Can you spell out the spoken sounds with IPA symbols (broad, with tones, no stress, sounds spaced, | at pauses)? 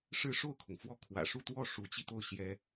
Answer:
ʂ ɻ̩˥˧ ʂ o˥˩ ʊ̯ kʰ ʊ˩ ŋ f w ɔ˥˩ kʰ w ä̰˨˩ ʂ u˥˧ t̪ w ɔ˥˩ ʂ u˧˥ t͡ɕ i˧ t̪ o˥˩ ʊ̯ ɕ j ɛ˥